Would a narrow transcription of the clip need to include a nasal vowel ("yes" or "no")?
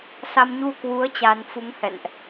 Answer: no